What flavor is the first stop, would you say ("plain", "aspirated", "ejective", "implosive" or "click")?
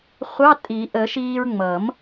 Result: ejective